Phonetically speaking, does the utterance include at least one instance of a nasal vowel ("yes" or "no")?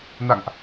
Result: no